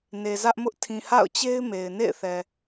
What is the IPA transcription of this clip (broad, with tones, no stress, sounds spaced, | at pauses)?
n e˨ z ä˦ ʔ m ʊ˦ ʔ tʰ ĩ˨ h a̰˦˨ ʊ̯ t͡ɕ e˦ ɪ̯ m e˨ ɪ̯ n ḛ˦˨ ɪ̯ θ ɛ˨